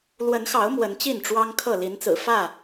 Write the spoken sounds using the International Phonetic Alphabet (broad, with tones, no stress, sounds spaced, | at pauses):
l w ə˨˦ n x ɑ˨˦ ʊ̯ m w ə˨˦ n t͡ɕ i˥˨ n ʈ͡ʂ w ɑ˦ ŋ kʰ ɤ˥˨ l i˨˦ n t͡s ɹ̩˨˩ f ä˥˨